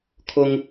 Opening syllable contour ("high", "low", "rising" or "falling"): high